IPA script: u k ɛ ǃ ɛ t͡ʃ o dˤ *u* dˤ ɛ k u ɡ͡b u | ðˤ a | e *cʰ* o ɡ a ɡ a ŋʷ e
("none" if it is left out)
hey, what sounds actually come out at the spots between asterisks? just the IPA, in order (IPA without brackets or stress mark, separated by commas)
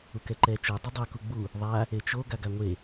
ʏ, t͡ʃ